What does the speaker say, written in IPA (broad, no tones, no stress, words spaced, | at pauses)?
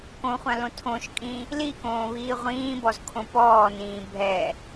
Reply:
kõχʷãlõ tʰõʃkʼĩ | likõːβiː ʁʷĩːbɔzkʰõ pɔːnĩː bʱɛ